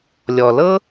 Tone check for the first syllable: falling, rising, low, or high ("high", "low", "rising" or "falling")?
low